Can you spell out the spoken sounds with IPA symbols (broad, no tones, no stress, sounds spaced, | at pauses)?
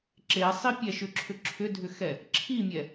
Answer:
ǁ e sˤ i pʲ ɛ ʃ ʏ ǁʰ ʏ ǁʰ ʏ dʱ ʏ x ɛ | ǁʰ i mʲ ɛ